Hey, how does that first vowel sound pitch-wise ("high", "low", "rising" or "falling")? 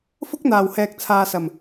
high